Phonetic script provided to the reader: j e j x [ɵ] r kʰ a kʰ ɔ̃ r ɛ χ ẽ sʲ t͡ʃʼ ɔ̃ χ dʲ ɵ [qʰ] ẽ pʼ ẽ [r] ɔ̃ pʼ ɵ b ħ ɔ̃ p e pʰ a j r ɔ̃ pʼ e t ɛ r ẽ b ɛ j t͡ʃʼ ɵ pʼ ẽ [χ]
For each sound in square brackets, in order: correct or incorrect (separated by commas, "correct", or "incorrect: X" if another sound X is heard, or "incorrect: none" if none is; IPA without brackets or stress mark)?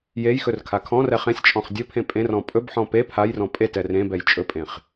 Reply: correct, incorrect: pʰ, correct, correct